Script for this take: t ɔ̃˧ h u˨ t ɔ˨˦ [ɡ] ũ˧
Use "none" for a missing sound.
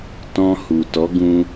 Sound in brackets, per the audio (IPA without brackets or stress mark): ɡ